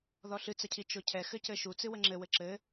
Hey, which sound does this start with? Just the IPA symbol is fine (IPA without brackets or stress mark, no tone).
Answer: ð